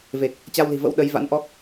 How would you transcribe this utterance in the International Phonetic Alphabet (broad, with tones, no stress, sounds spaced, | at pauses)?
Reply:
v e˨˩ k̚ | t͡ɕ a˧ w l i̤˨˩ v ə̰˧˥ w ɗ ə˨˦ j v a̰˧˥ n ʔ ɔ˦˥ k̚